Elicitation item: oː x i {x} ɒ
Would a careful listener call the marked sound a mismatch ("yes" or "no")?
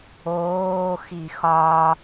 no